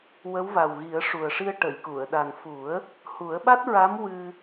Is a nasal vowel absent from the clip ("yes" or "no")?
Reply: yes